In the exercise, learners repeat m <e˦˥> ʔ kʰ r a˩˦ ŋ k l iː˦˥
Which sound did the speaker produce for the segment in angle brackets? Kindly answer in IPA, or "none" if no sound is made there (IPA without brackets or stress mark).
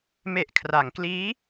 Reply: e˨˩